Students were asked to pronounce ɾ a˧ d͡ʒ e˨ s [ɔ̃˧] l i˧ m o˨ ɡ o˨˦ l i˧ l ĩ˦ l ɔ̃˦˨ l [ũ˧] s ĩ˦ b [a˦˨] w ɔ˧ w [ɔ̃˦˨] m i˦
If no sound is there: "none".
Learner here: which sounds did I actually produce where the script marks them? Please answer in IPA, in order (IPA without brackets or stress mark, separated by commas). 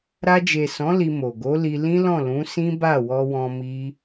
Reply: ɔ̃˨˦, ũ˨˦, a˦˨, ɔ̃˧